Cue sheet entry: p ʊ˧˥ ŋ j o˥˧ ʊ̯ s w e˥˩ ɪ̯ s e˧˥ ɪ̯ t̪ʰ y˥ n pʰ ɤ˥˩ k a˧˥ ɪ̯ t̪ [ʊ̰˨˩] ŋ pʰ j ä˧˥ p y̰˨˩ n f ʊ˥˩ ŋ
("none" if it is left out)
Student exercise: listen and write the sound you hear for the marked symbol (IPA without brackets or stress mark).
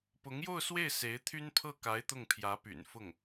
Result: ʊ˥˩